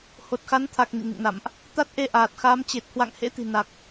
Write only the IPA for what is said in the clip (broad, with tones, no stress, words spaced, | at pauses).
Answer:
ho˨˩t̚xa˨˦nt̪ʰa˨˩k̚ nḭ˧˨ŋɨ̰˧˨ŋna̰˧˨mʔ | t̪a˦˥t̚ʔe˧ʔaː˨˩t̚xaː˨˦m t͡ɕe˨˩t̚hwa̰˧˨ŋhḛ˧˥ t̪i̤˨˩ na˨˩k̚